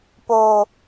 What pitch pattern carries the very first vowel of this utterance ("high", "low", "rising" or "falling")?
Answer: high